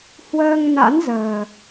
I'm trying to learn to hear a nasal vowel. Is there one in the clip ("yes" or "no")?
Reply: no